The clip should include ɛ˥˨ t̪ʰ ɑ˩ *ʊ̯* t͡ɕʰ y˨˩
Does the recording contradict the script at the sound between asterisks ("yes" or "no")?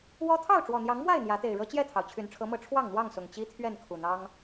no